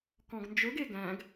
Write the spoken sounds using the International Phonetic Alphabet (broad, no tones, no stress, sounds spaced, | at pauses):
k ɔ̃ ɡ n d͡ʒ ɵ ɡ e ɡ æ̃ ɡ